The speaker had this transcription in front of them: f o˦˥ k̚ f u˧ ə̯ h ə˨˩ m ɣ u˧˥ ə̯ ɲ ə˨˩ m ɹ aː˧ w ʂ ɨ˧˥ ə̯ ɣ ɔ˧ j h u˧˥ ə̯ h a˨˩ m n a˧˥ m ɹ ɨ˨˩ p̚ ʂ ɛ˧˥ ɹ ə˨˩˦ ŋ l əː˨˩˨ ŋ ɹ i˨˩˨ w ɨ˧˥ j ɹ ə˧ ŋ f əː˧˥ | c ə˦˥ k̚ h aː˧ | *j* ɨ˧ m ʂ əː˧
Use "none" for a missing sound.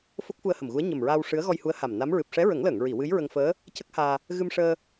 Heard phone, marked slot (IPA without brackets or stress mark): ɣ